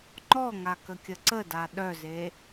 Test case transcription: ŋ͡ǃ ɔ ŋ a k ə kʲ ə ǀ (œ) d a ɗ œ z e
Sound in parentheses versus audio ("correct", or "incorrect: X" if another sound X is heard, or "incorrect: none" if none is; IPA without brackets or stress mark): incorrect: ə